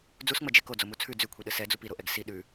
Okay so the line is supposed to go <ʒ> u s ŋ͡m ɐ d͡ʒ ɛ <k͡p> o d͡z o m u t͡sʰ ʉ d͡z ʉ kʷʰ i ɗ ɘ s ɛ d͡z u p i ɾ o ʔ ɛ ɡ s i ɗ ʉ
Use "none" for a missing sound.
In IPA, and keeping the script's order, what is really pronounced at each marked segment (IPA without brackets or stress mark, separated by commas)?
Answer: d͡z, k